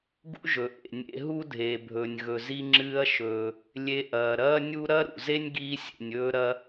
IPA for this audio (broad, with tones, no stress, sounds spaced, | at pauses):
ɡ ṵ˥ ʒ ɵ˩ ʔ ḛ˩ nʲ ḛ˧ ɦ u˥ dʱ e˩ bʱ ɵ˩ nʲ ɣ ɵ˩ z i˧ ŋ͡ǁ ɨː˧ ɐ̯ ʃ ɵː˩ | lʲ e˧ ʔ ɐː˩ ɾ ɐː˥ nʲ u˥ ɾ ɐ˥ ɾ ṵ˩ z e˥ nʲ ɡ iː˧ sʲ ḛ˩ nʲ ɵː˧ ɾ ɐ˧